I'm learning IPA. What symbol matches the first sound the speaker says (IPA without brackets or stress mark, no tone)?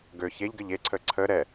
ɡ